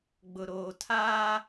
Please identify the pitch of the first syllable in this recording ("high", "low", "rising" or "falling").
low